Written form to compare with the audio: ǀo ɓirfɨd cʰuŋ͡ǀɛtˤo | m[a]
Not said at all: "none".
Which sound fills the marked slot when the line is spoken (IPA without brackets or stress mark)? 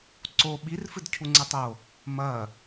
ɐ